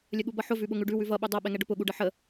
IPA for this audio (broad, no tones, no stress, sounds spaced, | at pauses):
lʲ ə ɠ u b ʌ ħ ʊ v ʉ ɓ ʊ ŋ ʉ ɖ ʉ w ʉ v ʌ ɓ ʉ dˤ ʌ ɓ ɛ ŋ ɛ ɖ ʊ p ʊ ɠ u ɖ ə ħ ə